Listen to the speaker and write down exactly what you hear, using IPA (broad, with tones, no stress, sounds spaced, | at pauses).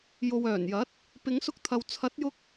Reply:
j o˨ w œː˨˩ n j ɐ˨˥ t̚ | p ɪ˨˧ ŋ s ʊ˧ k̚ t̪ʰ ɐ˨ w t͡sʰ ɐ˨˥ t̚ j ʊ˧ k̚